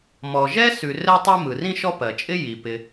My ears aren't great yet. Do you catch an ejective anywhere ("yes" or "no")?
yes